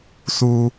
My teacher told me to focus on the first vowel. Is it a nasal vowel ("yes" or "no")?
no